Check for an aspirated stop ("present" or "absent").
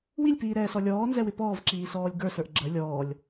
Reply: absent